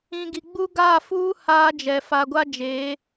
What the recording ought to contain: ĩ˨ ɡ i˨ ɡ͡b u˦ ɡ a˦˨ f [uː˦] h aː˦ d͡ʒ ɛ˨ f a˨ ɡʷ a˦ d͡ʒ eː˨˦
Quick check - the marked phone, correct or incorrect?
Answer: correct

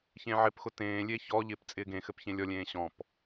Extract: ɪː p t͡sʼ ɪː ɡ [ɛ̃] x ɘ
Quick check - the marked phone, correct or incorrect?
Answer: incorrect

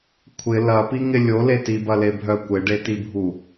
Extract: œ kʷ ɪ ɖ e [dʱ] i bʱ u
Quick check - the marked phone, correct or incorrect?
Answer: incorrect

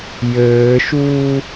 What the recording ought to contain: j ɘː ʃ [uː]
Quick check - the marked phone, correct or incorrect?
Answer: correct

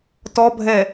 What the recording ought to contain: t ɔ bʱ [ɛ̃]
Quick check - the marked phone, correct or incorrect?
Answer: incorrect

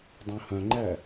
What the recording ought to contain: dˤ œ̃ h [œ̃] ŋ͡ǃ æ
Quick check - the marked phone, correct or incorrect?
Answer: correct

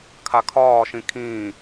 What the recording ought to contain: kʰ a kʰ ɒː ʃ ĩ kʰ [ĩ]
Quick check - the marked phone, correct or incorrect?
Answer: incorrect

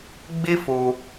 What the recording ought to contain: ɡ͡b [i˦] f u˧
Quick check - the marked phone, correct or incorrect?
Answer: correct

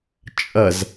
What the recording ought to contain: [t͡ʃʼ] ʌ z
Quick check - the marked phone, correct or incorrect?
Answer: correct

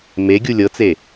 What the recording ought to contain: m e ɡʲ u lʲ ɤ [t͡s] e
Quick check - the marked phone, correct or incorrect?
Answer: correct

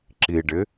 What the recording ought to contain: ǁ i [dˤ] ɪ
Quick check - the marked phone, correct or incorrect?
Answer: incorrect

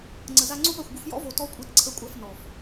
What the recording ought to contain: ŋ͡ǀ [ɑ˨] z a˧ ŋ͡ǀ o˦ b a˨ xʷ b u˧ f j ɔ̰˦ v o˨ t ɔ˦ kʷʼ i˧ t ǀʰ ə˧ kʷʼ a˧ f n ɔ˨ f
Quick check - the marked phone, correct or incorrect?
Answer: incorrect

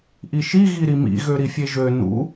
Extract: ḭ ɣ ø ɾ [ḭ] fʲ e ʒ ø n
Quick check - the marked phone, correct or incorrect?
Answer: incorrect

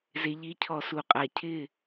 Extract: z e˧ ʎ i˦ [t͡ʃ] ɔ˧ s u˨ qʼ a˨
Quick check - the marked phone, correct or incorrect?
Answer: incorrect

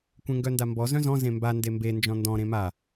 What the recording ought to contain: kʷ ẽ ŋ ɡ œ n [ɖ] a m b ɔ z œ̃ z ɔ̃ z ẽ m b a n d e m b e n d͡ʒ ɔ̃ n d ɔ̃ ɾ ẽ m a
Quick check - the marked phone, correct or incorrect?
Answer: incorrect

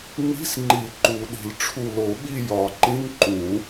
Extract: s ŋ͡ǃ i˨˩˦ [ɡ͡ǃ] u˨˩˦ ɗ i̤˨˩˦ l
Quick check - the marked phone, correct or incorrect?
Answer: incorrect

